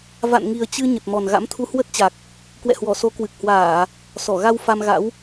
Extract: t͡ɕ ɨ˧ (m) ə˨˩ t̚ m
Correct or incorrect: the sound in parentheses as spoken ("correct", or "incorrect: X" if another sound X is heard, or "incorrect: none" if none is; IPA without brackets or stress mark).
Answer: incorrect: ɲ